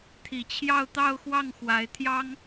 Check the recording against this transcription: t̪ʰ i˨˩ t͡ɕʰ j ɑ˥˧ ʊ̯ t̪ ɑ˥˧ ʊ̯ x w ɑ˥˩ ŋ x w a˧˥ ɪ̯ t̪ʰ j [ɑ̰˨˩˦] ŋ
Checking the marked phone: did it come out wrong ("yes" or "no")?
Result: yes